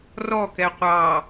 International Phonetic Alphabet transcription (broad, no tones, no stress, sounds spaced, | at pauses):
r ɔ k ɛ qʷ ɑ